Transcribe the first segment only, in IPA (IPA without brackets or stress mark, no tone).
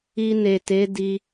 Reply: i